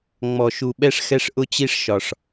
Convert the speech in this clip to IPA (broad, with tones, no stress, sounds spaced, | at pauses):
ŋ͡m ɔ˩ ʃ u˩ ɓ ɛ˨ ʂ x ɛ˨ ʂ ʔ ʊ˨ t͡ɕ i˨ ʂ ʃ ɒ˩ ʂ